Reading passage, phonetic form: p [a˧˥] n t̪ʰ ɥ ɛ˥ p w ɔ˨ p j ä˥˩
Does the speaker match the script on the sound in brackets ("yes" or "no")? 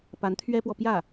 yes